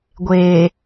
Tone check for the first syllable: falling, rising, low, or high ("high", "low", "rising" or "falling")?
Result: low